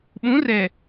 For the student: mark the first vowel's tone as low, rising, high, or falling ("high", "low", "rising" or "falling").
rising